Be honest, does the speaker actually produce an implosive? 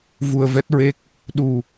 yes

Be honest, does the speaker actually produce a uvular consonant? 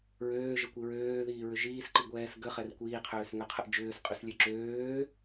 yes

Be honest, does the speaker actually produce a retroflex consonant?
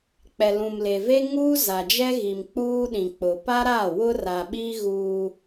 no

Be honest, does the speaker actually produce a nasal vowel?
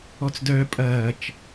no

